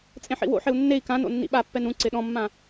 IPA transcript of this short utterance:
t͡sʼ ẽ ħ ḭ w o̰ ħ ɪ u̯ nː e i̯ k ã n o̰ nː ḭ ɓ a pː ɛ n ũ ǀ ɪ ɗ ɔ̃ mː ã

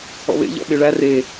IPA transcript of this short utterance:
ɔ̰ β ḛ ʎ ɔ̰ ɓ e ɭ æ r e

